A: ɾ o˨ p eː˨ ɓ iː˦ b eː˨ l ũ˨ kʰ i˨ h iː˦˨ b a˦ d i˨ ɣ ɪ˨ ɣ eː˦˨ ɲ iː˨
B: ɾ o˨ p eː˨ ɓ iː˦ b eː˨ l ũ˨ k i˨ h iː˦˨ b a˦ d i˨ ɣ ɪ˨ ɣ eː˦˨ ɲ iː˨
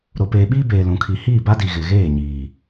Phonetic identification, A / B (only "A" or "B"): A